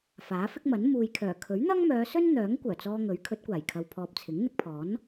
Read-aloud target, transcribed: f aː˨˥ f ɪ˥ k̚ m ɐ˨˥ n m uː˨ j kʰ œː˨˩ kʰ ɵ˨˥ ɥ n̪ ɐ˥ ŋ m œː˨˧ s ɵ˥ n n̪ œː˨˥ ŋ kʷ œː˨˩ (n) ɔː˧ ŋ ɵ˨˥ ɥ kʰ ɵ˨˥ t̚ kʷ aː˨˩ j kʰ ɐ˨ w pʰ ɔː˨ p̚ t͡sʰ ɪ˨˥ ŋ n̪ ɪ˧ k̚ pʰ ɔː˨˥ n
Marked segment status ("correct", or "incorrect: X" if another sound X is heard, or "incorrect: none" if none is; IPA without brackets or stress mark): incorrect: t͡s